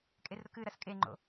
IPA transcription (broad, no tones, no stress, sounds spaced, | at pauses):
kʼ e r ɾ ʊ k ɨ ɾ ɐ s kʼ e ŋ͡ǃ o̰